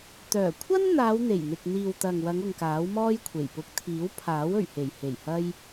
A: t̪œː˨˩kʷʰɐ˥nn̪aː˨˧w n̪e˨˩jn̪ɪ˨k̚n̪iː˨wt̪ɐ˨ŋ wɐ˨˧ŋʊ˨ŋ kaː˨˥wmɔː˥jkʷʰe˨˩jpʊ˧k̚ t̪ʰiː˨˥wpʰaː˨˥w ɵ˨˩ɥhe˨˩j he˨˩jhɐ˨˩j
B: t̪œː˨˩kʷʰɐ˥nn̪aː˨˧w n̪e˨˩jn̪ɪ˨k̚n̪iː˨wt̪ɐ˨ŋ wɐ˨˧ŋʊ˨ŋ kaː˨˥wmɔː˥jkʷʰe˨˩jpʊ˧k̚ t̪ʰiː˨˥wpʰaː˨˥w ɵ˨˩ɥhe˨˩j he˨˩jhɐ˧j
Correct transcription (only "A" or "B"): B